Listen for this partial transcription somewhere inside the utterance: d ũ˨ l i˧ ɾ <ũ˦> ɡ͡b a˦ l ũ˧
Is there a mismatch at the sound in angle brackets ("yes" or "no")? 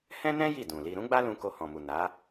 no